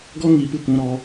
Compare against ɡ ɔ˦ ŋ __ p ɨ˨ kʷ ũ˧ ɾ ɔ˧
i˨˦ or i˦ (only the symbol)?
i˨˦